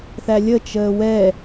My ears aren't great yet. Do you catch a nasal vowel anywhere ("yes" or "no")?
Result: no